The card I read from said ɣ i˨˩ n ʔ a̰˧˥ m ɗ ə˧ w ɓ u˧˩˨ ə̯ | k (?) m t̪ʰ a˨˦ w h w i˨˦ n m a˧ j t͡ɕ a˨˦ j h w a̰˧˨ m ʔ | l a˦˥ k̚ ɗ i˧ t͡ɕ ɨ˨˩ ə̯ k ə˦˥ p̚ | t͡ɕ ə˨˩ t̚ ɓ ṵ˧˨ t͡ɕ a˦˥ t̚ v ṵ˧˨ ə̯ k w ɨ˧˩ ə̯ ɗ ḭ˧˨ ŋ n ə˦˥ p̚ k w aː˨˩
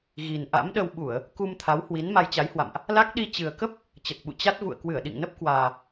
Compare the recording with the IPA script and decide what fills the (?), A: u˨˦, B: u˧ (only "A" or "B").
B